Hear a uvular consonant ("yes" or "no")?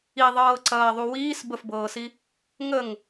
no